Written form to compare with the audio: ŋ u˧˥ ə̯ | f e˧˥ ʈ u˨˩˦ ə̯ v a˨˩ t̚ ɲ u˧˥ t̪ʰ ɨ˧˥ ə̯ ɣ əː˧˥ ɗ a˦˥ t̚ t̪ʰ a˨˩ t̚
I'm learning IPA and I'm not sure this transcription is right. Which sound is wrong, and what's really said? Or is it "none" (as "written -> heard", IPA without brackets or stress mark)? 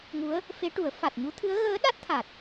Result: v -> f